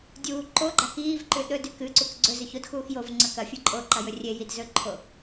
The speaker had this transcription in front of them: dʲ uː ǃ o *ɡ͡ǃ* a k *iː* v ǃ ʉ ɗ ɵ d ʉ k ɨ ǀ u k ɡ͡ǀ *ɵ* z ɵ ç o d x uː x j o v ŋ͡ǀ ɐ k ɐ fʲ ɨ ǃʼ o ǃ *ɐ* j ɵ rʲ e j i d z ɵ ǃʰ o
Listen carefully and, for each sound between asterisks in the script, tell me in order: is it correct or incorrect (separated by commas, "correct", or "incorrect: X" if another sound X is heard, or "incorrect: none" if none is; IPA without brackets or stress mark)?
correct, correct, correct, correct